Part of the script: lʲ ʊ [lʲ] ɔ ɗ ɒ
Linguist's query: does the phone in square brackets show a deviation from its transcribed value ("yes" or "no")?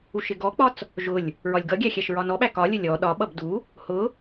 no